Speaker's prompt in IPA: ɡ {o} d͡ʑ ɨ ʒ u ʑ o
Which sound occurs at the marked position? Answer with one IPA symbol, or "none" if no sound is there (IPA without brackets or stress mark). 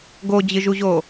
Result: o